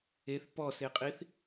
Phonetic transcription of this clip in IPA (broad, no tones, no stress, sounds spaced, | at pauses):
e θ p ɔ s e qʼ i θ